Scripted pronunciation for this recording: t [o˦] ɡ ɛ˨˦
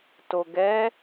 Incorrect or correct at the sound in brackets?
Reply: incorrect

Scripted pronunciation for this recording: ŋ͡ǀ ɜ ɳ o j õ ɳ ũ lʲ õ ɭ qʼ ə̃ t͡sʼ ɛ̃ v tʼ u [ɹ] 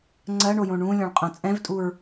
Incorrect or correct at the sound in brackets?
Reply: correct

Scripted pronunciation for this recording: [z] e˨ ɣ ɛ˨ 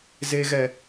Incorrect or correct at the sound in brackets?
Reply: correct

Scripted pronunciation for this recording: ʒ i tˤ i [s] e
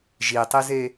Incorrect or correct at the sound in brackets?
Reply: incorrect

